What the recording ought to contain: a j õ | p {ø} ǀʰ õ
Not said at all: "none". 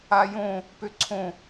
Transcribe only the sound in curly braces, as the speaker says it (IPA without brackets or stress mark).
ø